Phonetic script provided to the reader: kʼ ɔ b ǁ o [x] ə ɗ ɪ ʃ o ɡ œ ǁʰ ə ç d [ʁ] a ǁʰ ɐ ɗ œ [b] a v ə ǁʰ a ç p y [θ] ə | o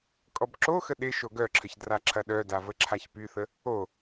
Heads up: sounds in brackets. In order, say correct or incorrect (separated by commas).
correct, incorrect, incorrect, correct